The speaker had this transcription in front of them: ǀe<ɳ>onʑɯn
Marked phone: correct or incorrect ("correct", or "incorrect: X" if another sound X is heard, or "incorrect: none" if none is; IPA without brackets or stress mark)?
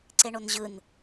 correct